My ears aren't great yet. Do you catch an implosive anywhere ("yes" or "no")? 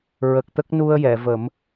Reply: no